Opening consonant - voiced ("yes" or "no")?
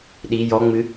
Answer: yes